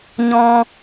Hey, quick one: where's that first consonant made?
palate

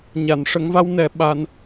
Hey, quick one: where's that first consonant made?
palate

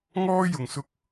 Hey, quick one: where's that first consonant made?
velum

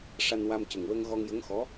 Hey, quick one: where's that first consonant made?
retroflex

